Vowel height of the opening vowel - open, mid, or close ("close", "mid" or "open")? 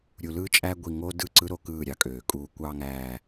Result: close